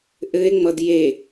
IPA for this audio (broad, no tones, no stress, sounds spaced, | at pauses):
ʔ ɘ e̯ ŋ͡m ʌ d j e